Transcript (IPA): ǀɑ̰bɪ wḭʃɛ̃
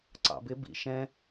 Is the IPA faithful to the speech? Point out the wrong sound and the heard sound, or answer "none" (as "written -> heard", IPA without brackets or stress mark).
w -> b